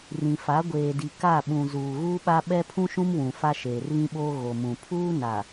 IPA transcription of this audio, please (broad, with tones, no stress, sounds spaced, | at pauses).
r ĩ˨ f a˨˦ ɡʷ eː˨ d i˨ k a˦˨ ɓ ũ˨ z uː˨ ɣ uː˦ ɓ a˦ ɓ ɛ˦ pʰ ũ˦ ʃ ũ˦ m w ũ˨ f a˦ ʃ eː˨ r β ĩ˦ ɓ oː˦ ɣ o˨ m ũ˨ pʰ uː˦ n a˨